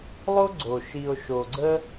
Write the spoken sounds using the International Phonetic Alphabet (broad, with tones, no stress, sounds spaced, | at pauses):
lˠ o˦ ɡ͡ǀ o˨ ʃ i˨ o̯ ʃ o˨ ɡ͡ǀ ə˦